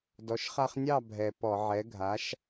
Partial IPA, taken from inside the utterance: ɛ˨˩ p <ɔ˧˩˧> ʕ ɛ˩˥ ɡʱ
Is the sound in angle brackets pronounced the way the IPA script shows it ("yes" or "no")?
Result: yes